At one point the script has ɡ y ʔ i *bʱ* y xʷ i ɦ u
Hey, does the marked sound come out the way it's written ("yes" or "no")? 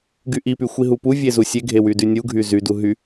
no